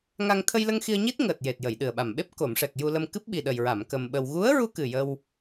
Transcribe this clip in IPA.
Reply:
ŋ a˧ ŋ t̪ʰ ə˧ j l ə˧ ŋ x i˧ ə̯ ɲ i˦˥ t̚ ŋ əː˨˩ t̚ j e˨˩ t̚ j ə˨˩˨ j ɗ ɨ˨˩ ə̯ ɓ a˨˩ m ɓ e˦˥ p̚ k o˨˩˨ m ʂ ɛ˨˩ k̚ j u˧ l ə˧ m k ɨ˦˥ p̚ ɓ i˨˩ ɗ ə˨˩ j ɹ a˨˩˨ m k ə˧ m ɓ ə˧ w ɣ u˧˥ ə̯ ɹ u˧ k ɨ˨˩ j ə˧ w

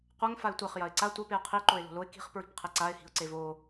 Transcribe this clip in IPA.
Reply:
qʷ ɐ ŋ f a ɪ̯ tʷ a χ j ɐ ɪ̯ ǀ a tʷ ɐ p e ʊ̯ qʰ i ǃ o ɪ̯ l o̤ l o ɪ̯ k i̤ χ p ɹ i̤ p qʰ e ǀ a ɪ̯ h i̤ ʊ̯ ǀ e v o

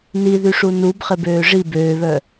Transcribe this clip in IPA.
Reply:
n i ð y ʂ u n u b χ ɪ b øː ʐ i b øː β œ

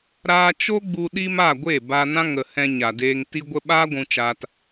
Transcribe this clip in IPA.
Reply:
ɾ aː˧ t͡ʃ o˦ ɡ͡b u˧ ɗ i˦ m a˦˨ ɡʷ e˦˨ b a˧ n ã˦ ŋ ə˨ h ɛ̃˧ ɲ a˨ d eː˧ ŋ t i˦ ɡʷ ə˦ ɓ aː˦ ɡʷ ũ˧ t͡ʃ aː˧ t

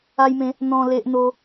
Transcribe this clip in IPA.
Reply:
a˧ j m ẽ˨˦ | n̪ ɔ̃˨˩ l e˨ ʔ n̪ o˧

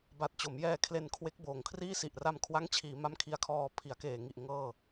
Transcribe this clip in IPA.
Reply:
b a˨˩ t̚ t͡ɕ o˩˦ m j ɛː˧ kʰ l e˧ n kʰ w e˦˥ k̚ b oː˨˩ ŋ kʰ r iː˥˩ s i˨˩ ʔ r a˧ m kʰ w a˦˥ ŋ t͡ɕʰ iː˩˦ m a˦˥ m kʰ i˧ a̯ kʰ ɔː˧ pʰ i˩˦ a̯ k eː˨˩ ŋ i˨˩ ʔ ŋ ɤː˥˩

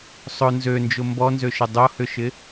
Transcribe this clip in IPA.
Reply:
sˤ ʊ n z ø n d͡ʒ ʊ m b ɔ n z ø ʃ ə dˤ o h ʏ ʃ ɪ

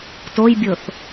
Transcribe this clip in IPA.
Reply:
t o j bʲ ʊ θ

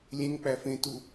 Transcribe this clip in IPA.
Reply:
lʲ ẽ ŋ k͡p æ f ẽ t u

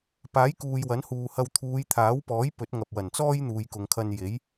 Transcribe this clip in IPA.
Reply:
p aː˨˥ j k uː˨ j w ɐ˨˥ n h uː˨ h ɐ˧ w t̪ʰ uː˨˧ j t̪ʰ aː˨˥ w p ɔː˨˥ j p ɵ˨˥ t̚ ŋ ɐ˨ p̚ w ɐ˨˩ n t͡s ɔː˥ j n̪ uː˨ j k ʊ˨ ŋ kʰ ɐ˧ n j e˨˥ j

